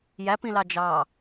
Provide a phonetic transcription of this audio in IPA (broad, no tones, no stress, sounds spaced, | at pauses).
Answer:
j æ p ĩ l ɑ d͡ʒ ɑ